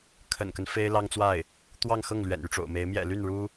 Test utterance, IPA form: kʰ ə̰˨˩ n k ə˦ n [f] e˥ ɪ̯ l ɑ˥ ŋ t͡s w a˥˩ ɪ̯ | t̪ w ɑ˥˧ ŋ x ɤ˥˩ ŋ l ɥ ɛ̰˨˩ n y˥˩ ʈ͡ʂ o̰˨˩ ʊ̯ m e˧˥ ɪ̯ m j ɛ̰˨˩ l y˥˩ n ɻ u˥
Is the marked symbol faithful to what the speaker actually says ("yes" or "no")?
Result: yes